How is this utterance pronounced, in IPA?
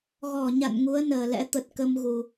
ɣɔ˧˩ ɲa̰˧˨n ŋu˨˦ə̯nəː˨˩lɛ̰˧˥ t̪ə˨˩t̚kə˧mɣu˨˩

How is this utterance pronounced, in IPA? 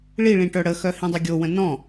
ɭiɭĩ ʈœɽəxœ hĩdˤɵɡʲowə̃ nɔ̃

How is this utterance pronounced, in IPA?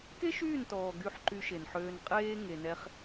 ke˦ʃyː˦˨ntɔː˨ ɡy˦˨ħǃy˧ʃe˨nħøː˧n qʼeː˦ ŋe˧nɛ˦χ

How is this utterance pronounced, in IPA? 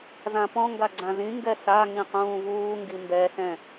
zãpɔ̃ŋɡa ɡ͡ǀãzĩŋɡɛ sa ŋĩqũːvuːŋɡi mbɛsɛ̃

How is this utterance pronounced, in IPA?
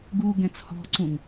ɡu ɡɛ̃t͡shɔ̤ǀũŋ

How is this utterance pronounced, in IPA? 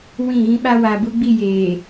wĩ˦˨ɣĩ˦ɓa˦ wa˨bu˦ɡ͡bi˦˨ jeː˨

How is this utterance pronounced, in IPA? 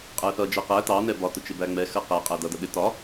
qʼæθʌ d͡ʒɜqæ tɑ nɛbɒ tʊt͡ʃɪbæŋ͡mɛ xɜqæ qʼædʌ dʌɗɪ tɒ

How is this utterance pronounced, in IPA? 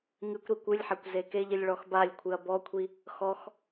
ŋɨkʷ ɾikʷɨlʲħækʷ zekeʎilʲ ɭɔxbalʲkʷʰɨɐ̯ bɔkʷʰi | xɔx

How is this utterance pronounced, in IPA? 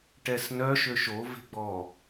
ʈɛsnœ ʃøʃo ve̤ɡ͡bɔ

